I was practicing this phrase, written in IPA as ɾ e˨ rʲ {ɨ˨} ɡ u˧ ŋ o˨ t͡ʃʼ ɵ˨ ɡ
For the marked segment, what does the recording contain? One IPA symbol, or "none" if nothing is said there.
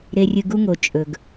ɨ˨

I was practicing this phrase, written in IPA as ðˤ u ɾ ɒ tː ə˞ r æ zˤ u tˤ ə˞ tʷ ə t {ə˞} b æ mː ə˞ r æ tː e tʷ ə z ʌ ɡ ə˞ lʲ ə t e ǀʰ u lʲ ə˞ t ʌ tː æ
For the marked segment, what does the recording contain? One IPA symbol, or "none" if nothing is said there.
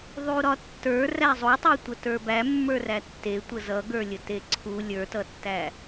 ə˞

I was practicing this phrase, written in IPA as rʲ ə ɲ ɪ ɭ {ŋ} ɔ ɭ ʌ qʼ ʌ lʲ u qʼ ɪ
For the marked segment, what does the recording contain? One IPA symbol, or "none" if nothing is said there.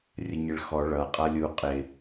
x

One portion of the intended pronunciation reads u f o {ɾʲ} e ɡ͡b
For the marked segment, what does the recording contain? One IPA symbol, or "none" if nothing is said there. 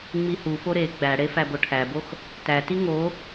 ɾ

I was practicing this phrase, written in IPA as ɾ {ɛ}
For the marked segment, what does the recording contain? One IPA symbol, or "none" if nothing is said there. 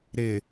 ɪ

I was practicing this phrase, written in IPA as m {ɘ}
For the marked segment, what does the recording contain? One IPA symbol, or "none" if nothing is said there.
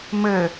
ɘ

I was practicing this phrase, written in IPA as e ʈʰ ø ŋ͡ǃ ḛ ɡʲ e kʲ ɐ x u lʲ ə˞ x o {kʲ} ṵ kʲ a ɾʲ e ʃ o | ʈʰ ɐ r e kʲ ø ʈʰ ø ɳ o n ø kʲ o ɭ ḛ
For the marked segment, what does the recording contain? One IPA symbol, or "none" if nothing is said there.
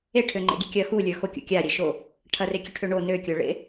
kʲ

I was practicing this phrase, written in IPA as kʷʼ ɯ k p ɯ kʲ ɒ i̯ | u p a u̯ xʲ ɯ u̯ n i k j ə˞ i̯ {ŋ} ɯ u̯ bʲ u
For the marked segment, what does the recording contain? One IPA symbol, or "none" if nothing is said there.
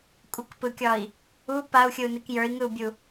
ŋ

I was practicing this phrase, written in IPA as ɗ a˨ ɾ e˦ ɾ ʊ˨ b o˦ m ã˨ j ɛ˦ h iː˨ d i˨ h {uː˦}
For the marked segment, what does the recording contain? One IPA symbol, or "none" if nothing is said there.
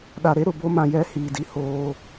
oː˦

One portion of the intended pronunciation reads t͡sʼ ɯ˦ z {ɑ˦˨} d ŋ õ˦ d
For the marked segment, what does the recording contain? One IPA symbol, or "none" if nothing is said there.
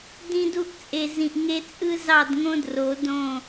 ɑ˦˨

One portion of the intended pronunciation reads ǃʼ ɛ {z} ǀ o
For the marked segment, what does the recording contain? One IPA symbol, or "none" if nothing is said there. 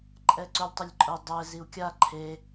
none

